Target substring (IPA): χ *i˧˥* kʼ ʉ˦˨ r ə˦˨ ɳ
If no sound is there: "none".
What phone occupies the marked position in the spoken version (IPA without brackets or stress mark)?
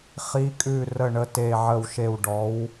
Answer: i˧˥